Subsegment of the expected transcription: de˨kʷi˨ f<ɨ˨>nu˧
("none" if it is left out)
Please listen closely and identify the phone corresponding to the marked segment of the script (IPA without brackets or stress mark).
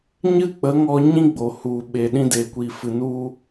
ɨ˨